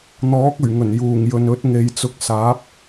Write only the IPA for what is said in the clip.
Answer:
n̪ɔː˨˥k̚ɵ˨˩ɥŋɵ˨˩n juː˨˩ŋjɵ˨n ɵ˨˥t̚ ŋe˨˧jt͡sʊ˧k̚saː˨˥p̚

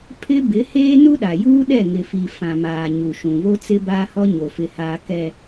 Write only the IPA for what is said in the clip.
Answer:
pʰɪ˦ bɪ˨˦heː˦ nu˦ɗa˨juː˦ɗɛ˦˨ ŋɪ˨fi˨ fã˨maː˨ ɲu˨ʃũ˨βo˦ t͡sɪ˦baː˦hɔ˦ ɲo˨fɪ˨haː˨ kɛ˨

